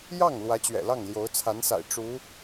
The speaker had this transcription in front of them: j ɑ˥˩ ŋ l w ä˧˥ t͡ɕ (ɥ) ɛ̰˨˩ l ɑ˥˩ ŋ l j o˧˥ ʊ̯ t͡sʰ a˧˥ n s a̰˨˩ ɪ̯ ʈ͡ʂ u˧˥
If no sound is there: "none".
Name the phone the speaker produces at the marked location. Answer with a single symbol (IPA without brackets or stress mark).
ɥ